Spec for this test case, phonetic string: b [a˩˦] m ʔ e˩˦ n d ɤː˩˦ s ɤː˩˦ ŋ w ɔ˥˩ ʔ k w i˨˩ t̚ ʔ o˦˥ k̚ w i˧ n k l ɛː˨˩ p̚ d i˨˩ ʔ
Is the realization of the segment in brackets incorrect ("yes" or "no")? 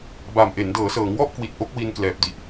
yes